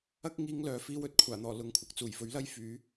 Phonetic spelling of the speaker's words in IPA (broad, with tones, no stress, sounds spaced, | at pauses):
ɐ˥ k̚ ŋ iː˧ ŋ l œː˨ f iː˧ w ɵ˨ t̚ kʷʰ aː˨˩ n̪ ɔː˨˩ l ʊ˨˥ ŋ kʷʰ ɐ˨ k̚ t͡s uː˨˩ j f ɵ˨˥ ɥ l ɐ˥ j f yː˨˥